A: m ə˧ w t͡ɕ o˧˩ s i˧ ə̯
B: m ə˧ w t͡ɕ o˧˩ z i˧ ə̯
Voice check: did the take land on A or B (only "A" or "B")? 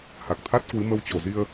B